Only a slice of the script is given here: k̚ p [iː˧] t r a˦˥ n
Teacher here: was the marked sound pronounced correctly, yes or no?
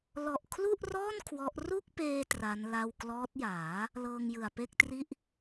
no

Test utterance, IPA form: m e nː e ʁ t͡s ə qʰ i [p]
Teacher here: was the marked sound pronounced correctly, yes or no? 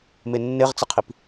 yes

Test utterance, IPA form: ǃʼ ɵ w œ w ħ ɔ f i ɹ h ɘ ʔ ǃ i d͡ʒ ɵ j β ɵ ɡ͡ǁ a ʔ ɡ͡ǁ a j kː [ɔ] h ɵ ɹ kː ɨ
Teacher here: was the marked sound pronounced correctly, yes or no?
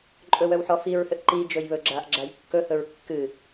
no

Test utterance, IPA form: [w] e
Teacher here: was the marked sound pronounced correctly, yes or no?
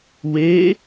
yes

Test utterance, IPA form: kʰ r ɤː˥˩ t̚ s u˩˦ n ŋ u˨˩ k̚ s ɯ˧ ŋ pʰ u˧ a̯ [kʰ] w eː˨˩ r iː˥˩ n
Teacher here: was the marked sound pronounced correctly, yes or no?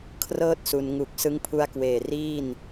no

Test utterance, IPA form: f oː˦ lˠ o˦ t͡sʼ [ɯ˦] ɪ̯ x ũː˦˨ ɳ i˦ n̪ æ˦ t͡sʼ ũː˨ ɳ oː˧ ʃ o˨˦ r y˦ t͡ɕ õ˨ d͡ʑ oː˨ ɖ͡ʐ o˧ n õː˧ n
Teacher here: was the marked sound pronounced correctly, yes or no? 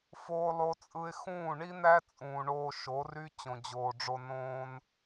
yes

